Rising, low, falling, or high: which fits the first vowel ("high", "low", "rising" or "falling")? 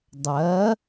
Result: rising